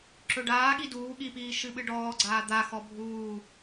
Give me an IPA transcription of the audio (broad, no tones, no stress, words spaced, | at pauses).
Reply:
ǁɵɖaːɠi duː ɠipiː ʃɨɓɨɖɔːɡ͡ǀaː d̪a xɔbʱuː